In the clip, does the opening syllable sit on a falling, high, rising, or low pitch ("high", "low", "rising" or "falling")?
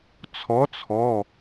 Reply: rising